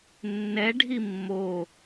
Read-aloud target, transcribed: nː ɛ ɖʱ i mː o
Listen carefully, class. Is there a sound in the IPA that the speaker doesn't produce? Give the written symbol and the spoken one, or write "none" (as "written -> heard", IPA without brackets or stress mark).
none